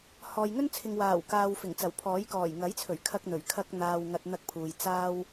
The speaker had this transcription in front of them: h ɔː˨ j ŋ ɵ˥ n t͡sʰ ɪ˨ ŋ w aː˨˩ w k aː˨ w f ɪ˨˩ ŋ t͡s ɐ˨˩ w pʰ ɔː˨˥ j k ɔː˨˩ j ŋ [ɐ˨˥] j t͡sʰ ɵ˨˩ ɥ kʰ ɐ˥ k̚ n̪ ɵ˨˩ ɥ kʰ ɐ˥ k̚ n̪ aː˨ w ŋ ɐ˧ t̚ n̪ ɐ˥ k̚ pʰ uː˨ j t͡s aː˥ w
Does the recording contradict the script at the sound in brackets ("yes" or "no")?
no